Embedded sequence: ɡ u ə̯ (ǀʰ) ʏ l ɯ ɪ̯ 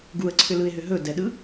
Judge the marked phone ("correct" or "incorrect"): correct